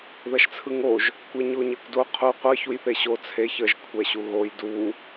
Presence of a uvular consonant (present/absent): present